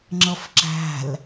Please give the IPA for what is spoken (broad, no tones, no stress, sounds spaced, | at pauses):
ŋ͡ǁ ʌ f ǁ æ̤ l